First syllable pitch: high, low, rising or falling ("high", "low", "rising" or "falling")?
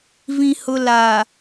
low